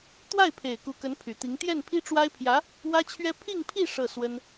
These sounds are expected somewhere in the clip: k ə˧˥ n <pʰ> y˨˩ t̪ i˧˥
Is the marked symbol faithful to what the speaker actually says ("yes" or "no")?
yes